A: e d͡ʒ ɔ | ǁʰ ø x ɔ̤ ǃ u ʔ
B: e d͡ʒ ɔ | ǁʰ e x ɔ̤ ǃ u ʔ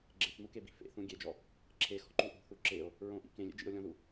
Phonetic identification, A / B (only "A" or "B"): B